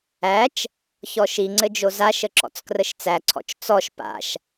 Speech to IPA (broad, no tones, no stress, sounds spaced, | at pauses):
æ t͡ʃ | ç ɔ ʃ i ŋ͡ǀ ɘ d͡ʒ o z a ʃ ə ǁ ɔ̰ t͡s k r ə ʃ t͡s æ ǀʰ ɔ̰ t͡ʃ t͡s ɔ ʃ p a̰ ʃ